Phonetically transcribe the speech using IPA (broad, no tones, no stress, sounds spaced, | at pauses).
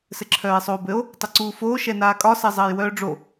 s ɘ ǁʰ œː e̯ sˤ oː b ɘ o̯ | tˤ ɘ ǀ uː f oː ʃ ɛ n aː kʼ ɒ s ɛ zˤ ɘː j w œː ɖ͡ʐ o